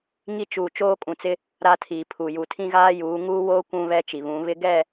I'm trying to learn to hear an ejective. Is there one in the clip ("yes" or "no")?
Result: yes